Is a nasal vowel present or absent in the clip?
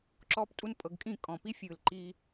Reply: present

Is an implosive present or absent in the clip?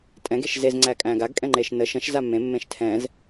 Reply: absent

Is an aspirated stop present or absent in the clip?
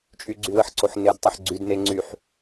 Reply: absent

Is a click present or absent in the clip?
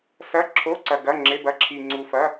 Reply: present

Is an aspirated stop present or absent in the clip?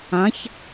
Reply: absent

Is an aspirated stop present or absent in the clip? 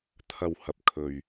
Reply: present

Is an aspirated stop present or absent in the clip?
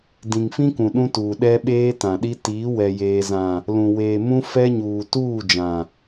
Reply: absent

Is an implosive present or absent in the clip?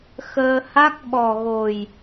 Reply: present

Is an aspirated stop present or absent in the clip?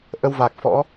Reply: absent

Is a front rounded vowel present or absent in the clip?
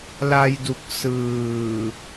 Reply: absent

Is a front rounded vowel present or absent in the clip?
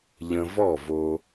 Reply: absent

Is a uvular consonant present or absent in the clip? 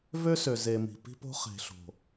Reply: present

